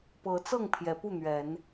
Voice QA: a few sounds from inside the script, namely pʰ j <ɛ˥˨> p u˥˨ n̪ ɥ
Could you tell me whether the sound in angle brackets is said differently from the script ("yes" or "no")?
yes